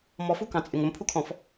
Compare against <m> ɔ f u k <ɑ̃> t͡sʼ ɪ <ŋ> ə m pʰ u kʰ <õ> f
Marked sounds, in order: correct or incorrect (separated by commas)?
correct, correct, correct, incorrect